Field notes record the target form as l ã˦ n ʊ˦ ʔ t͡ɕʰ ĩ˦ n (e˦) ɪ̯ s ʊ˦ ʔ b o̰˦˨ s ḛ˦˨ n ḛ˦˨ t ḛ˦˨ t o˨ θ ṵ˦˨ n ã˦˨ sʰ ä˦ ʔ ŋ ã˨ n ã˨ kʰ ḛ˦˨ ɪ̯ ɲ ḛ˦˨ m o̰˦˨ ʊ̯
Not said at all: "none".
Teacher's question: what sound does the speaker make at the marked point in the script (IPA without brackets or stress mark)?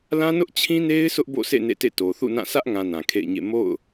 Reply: e˦